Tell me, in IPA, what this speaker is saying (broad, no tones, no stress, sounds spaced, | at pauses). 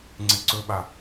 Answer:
ŋ͡ǀ e ǀ ɵ ɓ a